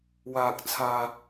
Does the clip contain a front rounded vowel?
no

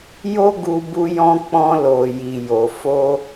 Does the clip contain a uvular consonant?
no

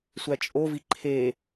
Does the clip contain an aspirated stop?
yes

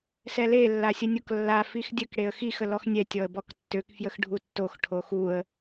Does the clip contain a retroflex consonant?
yes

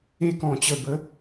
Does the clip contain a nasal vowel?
yes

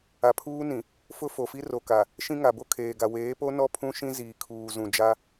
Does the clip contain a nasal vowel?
yes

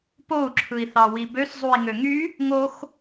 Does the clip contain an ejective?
no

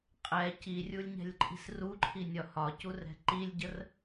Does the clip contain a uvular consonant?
yes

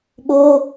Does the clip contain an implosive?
yes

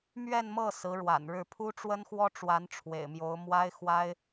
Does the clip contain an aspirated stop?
yes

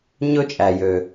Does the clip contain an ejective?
yes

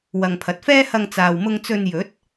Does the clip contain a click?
no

